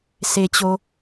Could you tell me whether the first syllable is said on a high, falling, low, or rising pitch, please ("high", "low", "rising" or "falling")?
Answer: low